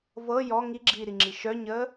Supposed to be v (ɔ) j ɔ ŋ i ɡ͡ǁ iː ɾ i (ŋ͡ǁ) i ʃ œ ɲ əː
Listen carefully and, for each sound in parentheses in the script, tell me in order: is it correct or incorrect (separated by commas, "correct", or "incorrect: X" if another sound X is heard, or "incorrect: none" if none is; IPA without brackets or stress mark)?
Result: incorrect: ɤ, correct